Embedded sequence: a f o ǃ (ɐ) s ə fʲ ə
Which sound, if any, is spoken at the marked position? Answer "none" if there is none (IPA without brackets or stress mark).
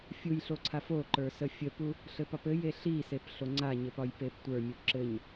ə˞